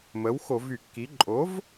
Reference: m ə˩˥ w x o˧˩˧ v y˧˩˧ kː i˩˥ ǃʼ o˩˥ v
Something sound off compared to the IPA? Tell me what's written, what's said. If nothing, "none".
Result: none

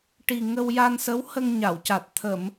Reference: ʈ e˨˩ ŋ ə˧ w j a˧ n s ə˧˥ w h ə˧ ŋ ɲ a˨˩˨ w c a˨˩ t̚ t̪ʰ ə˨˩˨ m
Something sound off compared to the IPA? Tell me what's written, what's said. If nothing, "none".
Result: e˨˩ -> i˨˩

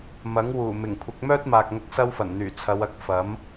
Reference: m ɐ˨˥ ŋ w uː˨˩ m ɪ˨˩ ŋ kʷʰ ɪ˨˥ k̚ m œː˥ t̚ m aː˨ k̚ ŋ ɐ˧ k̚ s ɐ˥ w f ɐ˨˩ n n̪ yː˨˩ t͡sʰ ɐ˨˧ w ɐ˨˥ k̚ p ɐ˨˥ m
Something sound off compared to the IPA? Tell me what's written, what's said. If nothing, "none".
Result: p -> f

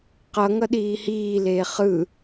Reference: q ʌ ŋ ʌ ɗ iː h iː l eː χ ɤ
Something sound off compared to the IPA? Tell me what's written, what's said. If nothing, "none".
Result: ɤ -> ɯ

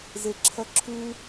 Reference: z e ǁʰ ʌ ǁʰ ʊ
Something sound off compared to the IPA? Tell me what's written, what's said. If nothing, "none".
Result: ʊ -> u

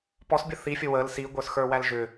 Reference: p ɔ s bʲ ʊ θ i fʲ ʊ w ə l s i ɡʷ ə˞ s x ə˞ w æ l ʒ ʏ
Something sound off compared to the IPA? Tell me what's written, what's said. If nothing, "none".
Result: none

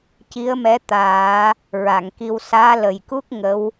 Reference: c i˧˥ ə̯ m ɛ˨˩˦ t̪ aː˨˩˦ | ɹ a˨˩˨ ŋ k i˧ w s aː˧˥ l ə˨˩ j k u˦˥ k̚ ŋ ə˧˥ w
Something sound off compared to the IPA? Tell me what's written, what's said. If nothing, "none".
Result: ɛ˨˩˦ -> ɛ˧˥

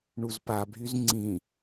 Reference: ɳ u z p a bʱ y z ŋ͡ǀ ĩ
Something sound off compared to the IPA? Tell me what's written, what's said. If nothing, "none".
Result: none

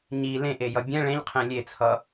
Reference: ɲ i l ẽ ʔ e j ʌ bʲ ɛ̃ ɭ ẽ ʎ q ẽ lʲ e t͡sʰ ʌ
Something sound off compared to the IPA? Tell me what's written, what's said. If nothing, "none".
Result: q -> qʰ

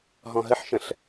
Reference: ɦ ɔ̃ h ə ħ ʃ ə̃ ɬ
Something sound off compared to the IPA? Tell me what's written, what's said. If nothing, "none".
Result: h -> ɦ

